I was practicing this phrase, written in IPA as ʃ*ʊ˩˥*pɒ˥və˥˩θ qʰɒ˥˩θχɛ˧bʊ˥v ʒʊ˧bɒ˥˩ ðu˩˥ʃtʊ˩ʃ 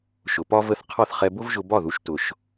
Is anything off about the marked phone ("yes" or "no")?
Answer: yes